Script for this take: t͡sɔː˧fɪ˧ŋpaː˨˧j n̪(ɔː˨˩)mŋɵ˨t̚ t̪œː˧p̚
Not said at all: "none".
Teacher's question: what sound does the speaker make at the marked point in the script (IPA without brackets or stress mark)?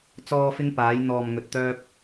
ɔː˨